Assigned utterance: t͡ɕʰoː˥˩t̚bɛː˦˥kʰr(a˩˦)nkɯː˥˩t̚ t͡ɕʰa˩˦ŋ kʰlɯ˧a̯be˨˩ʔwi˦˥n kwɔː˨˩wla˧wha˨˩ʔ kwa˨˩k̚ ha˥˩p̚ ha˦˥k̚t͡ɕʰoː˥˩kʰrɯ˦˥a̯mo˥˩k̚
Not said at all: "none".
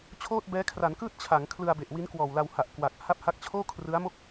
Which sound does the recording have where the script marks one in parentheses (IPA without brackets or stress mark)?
a˩˦